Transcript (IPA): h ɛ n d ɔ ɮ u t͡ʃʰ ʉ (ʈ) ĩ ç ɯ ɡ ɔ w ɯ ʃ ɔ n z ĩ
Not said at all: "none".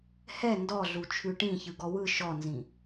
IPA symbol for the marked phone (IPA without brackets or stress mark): ʈ